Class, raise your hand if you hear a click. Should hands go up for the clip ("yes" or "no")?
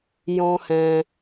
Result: no